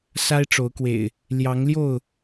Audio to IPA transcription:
sa˦ɪ̯ʈ͡ʂo˨˦ʊ̯kwḛ˨˩ɪ̯ | ljɑ˨˦ŋljo˥˨ʊ̯

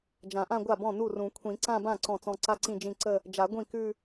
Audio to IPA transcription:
d͡ʒã˨˩˦ʔã˥˧ɡʷa˥˩bɔ̃˥˩ nu˥˩rũ˨˩˦ kʷʰĩ˨˩˦ǀã˥˧bã˥˩ ǀɔ̃˥˩t͡sɔ̃˥˧ ǀa˥ǀĩ˥˧d͡ʒĩ˥˧ ǀə˥˧ | d͡ʒa˨˩˦ ɡʷĩ˥˩kʉ˥˧

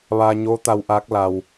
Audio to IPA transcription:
ʋaː˧ɲoː˧˥t̪a˧w ʔaː˧˥k̚ la˧w

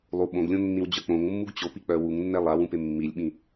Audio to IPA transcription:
lˠu ɓõɡlʲõnːĩwd͡ʑœ k͡põŋmːuɡ t͡ɕopik͡pœ wuŋnːɛ lˠawũpe mːilʲɓĩ

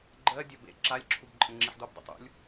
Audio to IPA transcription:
ɡ͡ǃɜ dʲɒbḛ ǁalʲ ǁʰubǃʼə̃ŋ͡ǁiħdob dˤə̰tˤṵlʲ

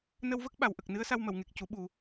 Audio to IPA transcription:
nə˧wvə˦˥k̚ ɓa˨˩wʔə˨˩k̚ nɨ˧˥ə̯sa˧w mə˨˩˨wŋe˨˩k̚cu˨˩˦ ɓu˨˩

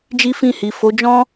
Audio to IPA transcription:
d͡ʒi˦fĩ˦˨hi˨ fo˨˦d͡ʒɔ̃˦

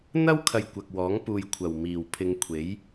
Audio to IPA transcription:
n̪ɐ˥wkʰɐ˨j kʷɐ˨k̚wɔː˨˥ŋ puː˨j kʷʰɐ˨˩w miː˨˩wpʰɪ˨˧ŋ kʷʰe˨˥j

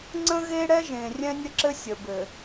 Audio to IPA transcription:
ŋ͡ǀə̃˦ɣe˦ ɽɛ˦ʒẽ˨ rʲɛ̃˦nʲə˦ǁɘ˦ sʲə˨bɘ˨

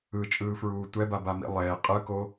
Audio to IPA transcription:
ɯt͡ʃʼɯːfɹuː tʷɛbabamḭ lˠeː qʼɯko

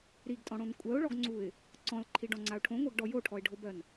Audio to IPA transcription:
ɾiɡtʼɔ̃ɽõn kʷʼɜʊ̯ɭɔɡŋ͡ǀuɪ̯ | ǀɔ̃lǃʰiɖɔ̃ŋ͡ǀaʊ̯ ʈʰõŋʷɜɡɖɔ joʈʰɔɪ̯ɖʱobɜn

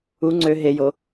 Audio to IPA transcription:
u ŋ͡ǀø ɦejo

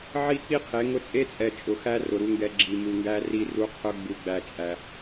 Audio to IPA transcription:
ʕi˦k͡pi˦qʰe˨˦ ŋʊ˦ t͡sʼe˦t͡sʼɛ˨ t͡ʃʼʊ˨xæ˦rʊ˨ ɾu˦ŋɡɛ˦ ɡ͡ǁi˨mu˨ŋɡæ˦ri˦ ru˦qʰʊ˦ ɡ͡bu˦ɡ͡bæ˦t͡ʃʼæ˦

